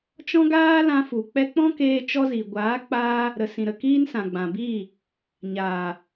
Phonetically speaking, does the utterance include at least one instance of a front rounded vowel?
no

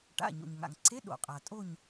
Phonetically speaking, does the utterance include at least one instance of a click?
yes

